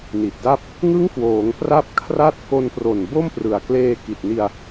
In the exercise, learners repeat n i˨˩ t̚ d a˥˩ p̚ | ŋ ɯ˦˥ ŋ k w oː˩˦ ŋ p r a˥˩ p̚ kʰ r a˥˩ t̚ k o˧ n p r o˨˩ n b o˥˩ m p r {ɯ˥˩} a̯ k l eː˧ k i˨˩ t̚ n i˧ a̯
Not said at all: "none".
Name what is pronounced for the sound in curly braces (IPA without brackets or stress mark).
ɯ˨˩